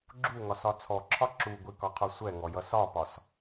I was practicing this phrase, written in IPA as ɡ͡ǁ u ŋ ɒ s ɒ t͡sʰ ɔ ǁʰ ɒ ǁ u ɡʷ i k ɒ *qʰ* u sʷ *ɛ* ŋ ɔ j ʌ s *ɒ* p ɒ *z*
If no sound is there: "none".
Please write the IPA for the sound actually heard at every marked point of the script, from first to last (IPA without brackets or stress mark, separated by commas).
qʰ, ɛ, ɒ, s